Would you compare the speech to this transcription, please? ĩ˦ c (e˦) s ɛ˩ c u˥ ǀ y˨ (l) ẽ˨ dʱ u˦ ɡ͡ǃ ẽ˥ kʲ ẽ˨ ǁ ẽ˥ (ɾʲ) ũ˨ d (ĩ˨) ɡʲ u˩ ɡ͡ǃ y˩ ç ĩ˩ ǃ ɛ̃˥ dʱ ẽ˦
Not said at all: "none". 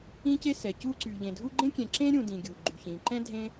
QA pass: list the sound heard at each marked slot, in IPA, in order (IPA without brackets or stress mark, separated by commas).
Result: e˦, ʎ, ɾʲ, ĩ˩